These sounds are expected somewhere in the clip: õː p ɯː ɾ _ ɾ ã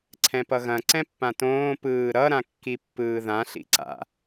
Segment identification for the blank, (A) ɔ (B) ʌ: B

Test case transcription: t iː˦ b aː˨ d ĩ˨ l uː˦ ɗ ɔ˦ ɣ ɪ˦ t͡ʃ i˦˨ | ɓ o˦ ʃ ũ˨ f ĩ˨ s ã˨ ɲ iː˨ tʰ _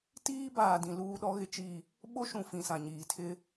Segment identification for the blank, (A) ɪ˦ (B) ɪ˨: A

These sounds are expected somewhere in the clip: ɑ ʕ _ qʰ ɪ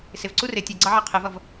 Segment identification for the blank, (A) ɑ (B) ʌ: A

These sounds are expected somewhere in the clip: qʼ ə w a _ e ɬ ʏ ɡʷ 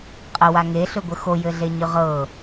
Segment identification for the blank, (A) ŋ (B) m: A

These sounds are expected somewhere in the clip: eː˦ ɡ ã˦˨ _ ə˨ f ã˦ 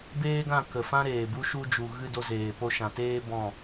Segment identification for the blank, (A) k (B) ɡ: A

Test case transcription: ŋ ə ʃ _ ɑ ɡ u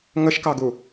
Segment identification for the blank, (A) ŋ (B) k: B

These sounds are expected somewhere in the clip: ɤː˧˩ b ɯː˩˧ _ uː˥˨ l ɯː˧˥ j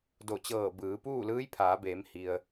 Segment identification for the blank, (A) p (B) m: A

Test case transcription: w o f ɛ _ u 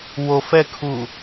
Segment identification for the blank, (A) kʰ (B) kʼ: A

